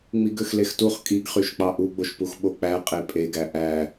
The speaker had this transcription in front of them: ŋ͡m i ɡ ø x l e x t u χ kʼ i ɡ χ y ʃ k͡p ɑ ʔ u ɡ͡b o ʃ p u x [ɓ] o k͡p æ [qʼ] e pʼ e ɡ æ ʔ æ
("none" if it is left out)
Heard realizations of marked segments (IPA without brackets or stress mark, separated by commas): ɓ, qʼ